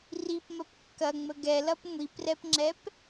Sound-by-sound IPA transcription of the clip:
ripmɐp kːɐŋ͡mə ɡɛlɐp ŋʷiprɛpŋ͡ǁɛp

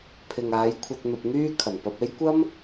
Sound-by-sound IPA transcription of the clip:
pʰɪ˨ŋaː˨˧jkʷʰɐ˧t̚ n̪ɐ˧p̚n̪yː˥kʰɐ˨˩n pɐ˧p̚e˥j kʷɐ˥m

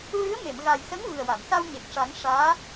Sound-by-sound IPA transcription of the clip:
ɹɨ˧˥ə̯me˨˩˨mɣa˨˩jsə˧˥ŋ vɨ˨˩ə̯wa˨˩˨msa˧w ɲe˨˩k̚ʂa˨˩˦ŋʂaː˧˥

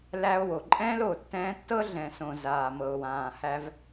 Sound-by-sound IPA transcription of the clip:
læː˧o̯wo˨ǃʼɛ̃ː˦l o˨ tːɛ̃ː˧tːɤ˦ɮɛ̃˨sõ˨ zaː˨mɤ˨o̯wãː˨ hæ˧v

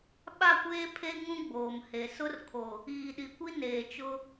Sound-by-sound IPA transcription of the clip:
ɓa˦˨kʷeː˦ pʰe˦ŋũ˦ ɡ͡boː˨mhe˨ sʊ˦rkʰo˨ | iː˨ɗi˨kʷi˦ neː˨t͡ʃʊ˦

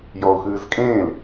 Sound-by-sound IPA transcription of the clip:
jɔʊ̯xɨːzkʼẽːl

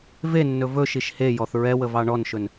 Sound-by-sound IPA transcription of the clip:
venːɵ vɵʃiʃ hejɔθ ɹɛwəvɑ ɳɔnʃɵn

